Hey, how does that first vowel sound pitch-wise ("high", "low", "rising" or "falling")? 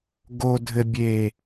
low